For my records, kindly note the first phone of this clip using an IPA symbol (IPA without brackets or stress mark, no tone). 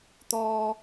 t̪